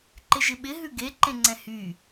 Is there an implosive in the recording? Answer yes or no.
yes